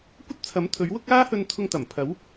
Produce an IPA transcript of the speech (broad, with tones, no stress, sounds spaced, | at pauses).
kʷ ɐ˥ t̚ t͡sʰ ɐ˨˥ m t̪ʰ ɵ˨˥ ɥ w ʊ˥ k̚ aː˥ h ɵ˧ n t̪ʰ ʊ˧ ŋ t̪ ɐ˨˩ m pʰ ɐ˨˥ w